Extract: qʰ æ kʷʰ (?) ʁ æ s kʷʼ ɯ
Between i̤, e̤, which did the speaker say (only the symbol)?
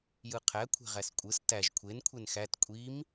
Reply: e̤